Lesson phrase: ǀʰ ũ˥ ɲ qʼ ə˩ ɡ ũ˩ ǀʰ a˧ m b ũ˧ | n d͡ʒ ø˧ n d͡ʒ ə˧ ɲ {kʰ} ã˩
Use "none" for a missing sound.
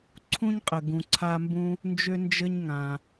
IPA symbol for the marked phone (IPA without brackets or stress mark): ŋ